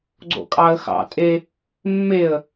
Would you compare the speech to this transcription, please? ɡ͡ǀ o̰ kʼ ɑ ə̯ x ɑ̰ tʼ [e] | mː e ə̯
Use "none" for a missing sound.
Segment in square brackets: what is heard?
e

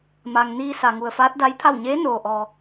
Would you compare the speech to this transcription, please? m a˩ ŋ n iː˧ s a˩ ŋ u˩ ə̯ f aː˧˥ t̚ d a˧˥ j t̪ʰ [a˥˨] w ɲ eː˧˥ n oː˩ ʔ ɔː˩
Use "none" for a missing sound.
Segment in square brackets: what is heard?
a˥˨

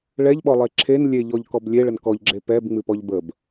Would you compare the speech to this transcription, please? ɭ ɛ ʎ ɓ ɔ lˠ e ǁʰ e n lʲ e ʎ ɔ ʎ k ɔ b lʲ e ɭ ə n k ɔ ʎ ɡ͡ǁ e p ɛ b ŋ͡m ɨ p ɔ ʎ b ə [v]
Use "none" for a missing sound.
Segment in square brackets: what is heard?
b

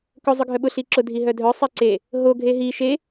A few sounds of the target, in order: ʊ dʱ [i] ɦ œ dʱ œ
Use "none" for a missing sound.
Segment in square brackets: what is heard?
i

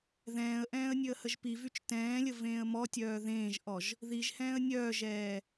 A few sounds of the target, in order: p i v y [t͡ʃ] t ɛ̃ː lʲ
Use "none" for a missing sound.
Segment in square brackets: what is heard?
t͡ʃ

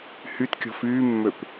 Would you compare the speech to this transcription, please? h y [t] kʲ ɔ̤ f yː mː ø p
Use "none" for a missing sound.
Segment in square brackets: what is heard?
t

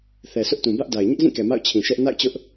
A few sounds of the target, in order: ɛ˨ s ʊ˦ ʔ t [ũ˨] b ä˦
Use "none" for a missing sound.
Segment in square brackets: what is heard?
ũ˨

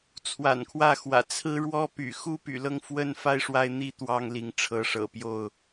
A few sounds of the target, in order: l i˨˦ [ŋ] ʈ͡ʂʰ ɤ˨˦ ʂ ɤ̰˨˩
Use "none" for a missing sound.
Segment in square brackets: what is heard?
ŋ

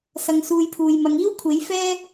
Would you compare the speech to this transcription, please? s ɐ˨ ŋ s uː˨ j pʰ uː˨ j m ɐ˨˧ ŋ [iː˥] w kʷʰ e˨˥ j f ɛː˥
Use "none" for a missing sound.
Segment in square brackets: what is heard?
iː˥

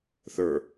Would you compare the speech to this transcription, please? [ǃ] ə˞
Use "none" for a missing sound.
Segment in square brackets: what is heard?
θ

